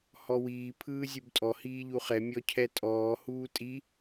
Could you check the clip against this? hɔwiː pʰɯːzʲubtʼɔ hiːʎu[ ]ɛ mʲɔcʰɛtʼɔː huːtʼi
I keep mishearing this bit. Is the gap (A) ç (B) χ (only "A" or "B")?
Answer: B